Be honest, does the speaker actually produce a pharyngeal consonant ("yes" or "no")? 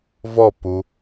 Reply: no